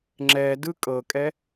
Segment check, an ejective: present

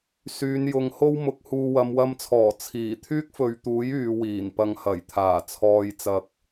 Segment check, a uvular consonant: absent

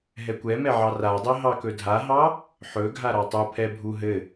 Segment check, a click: absent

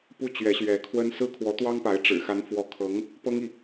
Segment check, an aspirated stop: present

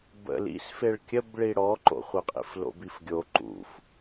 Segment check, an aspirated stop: absent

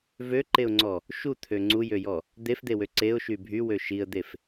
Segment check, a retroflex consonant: absent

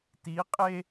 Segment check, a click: absent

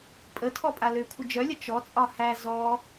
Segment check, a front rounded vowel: present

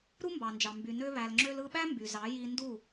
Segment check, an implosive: present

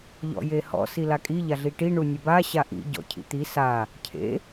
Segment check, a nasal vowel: absent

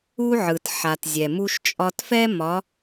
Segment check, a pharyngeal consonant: present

